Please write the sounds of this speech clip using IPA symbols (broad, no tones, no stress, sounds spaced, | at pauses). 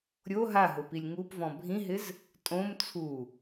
ɾʲ o ɦ a ɦ ʊ p i lʲ ŋ u p v ɔ̃ bʱ ĩ ɦ ɪ z | tʼ õ m t͡sʰ u